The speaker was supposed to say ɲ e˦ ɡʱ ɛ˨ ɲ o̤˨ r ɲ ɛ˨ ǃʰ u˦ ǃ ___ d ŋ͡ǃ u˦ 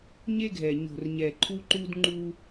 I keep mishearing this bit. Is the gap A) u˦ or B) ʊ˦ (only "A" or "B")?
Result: A